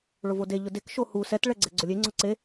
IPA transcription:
ɭ ʊ v o d e ʎ ʊ d e k ʃ o h u s ɛ t ɭ ɛ ɡ͡ǀ ɛ ɡ͡ǀ ʊ lʲ e ŋ͡ǀ ɔ ǀ e

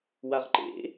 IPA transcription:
w a ʁ ǃ ḛ

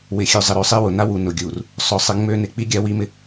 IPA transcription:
w ɪ˨ xʲ ø˨ zˤ ɪ˨ ɾ ø˨ sˤ e˦ w ʊ˨ n a˦ w u˨ n ʊ˨ ɡʲ u˨ r | sˤ ʊ˨ sˤ ɪ˨˦ ŋ͡m ø˦ n ɪ˨˦ k͡p i˦ ɡʲ a˦ w i˦ m ɪ˦

